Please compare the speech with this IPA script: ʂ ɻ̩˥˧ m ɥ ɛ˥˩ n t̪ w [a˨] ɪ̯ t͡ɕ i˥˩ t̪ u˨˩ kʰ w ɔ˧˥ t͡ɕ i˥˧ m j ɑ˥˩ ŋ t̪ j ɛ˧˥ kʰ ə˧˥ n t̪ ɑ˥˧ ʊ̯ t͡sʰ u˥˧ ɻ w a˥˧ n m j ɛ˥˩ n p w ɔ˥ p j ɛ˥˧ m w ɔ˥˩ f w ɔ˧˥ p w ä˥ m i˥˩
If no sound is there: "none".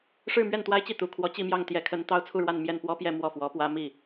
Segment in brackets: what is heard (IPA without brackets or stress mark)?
a˥